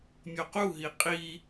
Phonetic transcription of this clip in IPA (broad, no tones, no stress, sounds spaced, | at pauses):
mʲ o q u ɦ i qʼ i